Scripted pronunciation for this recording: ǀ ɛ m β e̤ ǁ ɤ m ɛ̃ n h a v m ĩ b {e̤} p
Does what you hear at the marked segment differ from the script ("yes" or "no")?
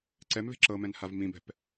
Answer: yes